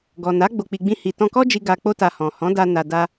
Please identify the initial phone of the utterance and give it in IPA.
ɡ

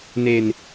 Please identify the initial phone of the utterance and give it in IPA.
n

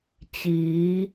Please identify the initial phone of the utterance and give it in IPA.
t͡ɕ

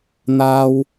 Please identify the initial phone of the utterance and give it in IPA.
n̪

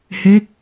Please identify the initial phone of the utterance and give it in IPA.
h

